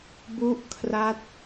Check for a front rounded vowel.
absent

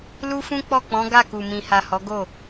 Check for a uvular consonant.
absent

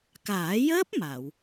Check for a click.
absent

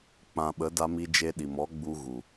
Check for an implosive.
present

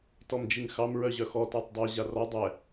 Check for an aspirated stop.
absent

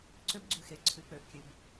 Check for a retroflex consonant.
absent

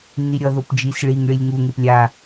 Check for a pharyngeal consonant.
absent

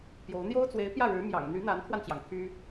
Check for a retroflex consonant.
present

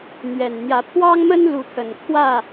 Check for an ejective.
absent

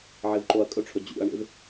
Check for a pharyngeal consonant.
present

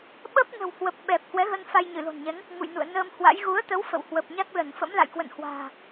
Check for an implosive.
present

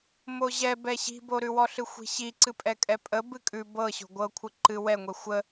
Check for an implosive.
absent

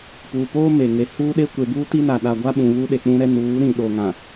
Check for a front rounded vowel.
absent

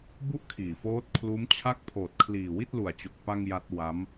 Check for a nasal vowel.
absent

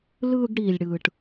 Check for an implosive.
absent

